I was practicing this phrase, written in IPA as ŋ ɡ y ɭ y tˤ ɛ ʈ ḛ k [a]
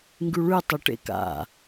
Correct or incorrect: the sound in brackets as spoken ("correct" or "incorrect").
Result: incorrect